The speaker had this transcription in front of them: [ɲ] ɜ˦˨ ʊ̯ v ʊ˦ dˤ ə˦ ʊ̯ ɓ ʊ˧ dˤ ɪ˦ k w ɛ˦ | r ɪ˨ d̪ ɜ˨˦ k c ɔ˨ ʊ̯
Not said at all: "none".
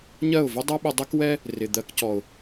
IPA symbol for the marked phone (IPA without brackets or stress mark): ɲ